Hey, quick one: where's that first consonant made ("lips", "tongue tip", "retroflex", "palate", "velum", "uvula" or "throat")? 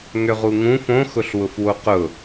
velum